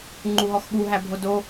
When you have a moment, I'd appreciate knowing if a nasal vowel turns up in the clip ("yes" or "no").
no